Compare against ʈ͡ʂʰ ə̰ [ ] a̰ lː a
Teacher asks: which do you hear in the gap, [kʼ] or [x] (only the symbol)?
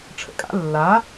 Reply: kʼ